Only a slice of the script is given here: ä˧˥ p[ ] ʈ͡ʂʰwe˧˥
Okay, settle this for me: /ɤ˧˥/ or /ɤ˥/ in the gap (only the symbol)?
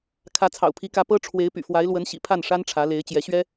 ɤ˥